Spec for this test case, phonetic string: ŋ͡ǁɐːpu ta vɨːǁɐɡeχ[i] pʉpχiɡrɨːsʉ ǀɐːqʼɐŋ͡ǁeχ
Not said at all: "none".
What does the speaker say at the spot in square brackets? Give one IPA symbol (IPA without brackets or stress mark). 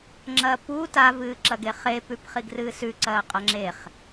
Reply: e